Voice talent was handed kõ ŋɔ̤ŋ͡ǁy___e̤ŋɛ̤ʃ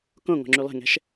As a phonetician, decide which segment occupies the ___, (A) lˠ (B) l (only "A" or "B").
A